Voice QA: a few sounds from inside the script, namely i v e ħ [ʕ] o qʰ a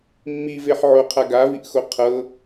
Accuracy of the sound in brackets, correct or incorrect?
correct